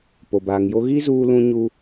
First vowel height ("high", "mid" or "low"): mid